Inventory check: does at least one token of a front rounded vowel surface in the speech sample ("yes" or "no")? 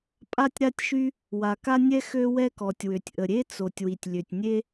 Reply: yes